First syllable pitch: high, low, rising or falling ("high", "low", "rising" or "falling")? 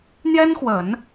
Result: high